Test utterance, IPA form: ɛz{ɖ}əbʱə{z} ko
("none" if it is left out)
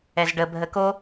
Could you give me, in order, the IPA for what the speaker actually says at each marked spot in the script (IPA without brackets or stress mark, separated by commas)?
ɖ, none